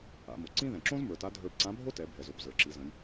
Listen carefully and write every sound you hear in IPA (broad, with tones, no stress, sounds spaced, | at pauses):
a̰˩˧ m o˩ ǀ ĩ˥ ð ɛ̃˩ ǁ õ˥ z m ə˞˩˧ t a˧˥ dʱ ə˞˧ b ǀ ã˧˥ bʱ o˥ t ɛ˩˧ bʱ ɛ˩ z o˩ b z ə˞˩ ǁ i˩˧ z ə̃˩˧ j